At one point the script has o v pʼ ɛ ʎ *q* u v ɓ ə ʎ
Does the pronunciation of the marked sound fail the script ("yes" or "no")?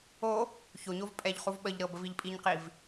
yes